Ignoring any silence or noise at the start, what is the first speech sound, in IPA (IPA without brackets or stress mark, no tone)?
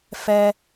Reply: f